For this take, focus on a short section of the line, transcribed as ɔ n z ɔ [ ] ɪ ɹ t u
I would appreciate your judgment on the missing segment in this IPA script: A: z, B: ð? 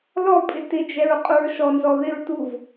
B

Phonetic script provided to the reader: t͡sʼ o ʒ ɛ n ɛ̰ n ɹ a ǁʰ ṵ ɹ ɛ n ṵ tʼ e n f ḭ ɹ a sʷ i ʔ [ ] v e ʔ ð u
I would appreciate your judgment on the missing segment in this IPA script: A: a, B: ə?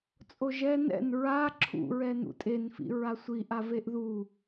A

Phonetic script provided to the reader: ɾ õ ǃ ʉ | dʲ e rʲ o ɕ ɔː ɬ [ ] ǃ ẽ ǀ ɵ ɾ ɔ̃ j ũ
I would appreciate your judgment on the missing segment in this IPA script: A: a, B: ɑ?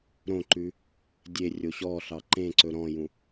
B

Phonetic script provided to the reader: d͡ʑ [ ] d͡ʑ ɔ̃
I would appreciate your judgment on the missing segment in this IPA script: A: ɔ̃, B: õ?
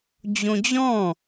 B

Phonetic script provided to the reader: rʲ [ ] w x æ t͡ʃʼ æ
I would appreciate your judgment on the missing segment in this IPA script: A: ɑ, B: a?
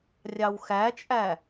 A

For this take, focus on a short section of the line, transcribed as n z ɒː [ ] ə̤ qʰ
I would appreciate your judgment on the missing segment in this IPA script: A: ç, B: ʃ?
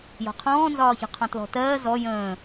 A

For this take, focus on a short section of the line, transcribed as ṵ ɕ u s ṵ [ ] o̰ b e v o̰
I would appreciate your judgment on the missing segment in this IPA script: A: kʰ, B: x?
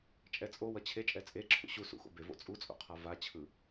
B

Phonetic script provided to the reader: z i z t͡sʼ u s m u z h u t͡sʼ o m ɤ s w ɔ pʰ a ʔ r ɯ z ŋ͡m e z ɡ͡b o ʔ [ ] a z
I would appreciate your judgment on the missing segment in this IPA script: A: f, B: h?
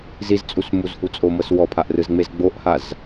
B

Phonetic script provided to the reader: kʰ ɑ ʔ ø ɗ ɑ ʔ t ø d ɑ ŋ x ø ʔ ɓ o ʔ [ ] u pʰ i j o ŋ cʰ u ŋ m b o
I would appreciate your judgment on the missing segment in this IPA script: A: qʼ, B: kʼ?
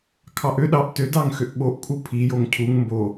B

